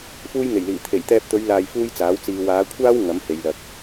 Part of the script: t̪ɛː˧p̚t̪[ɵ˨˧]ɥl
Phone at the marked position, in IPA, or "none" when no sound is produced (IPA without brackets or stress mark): ɵ˨˧